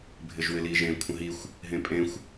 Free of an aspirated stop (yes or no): no